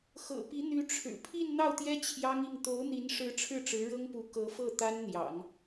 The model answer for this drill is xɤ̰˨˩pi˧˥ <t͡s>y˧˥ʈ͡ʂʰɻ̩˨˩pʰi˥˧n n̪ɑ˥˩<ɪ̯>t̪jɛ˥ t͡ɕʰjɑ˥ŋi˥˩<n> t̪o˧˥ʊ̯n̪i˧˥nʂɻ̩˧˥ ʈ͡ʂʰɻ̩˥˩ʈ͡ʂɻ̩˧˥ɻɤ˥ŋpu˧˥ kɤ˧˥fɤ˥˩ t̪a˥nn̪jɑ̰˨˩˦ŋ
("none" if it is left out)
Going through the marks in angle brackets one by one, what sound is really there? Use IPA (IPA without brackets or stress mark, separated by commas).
n̪, ʊ̯, ŋ